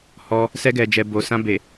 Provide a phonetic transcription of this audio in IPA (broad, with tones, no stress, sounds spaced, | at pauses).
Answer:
h ɔ˧ | s ɛ˧ ɡ ɛ˨ d͡ʒ ɛ˨ b o˨ s ã˧ b e˨